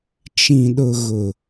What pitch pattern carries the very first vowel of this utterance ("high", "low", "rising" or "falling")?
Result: low